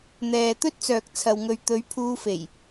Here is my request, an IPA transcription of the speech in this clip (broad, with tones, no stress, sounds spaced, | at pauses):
n̪ ɛː˨ t̪ ɵ˥ t̚ t͡s œː˨ k̚ t͡sʰ ɐ˨ w ŋ ɵ˨ ɥ t̪ ɵ˨˥ ɥ pʰ uː˧ f e˨˩ j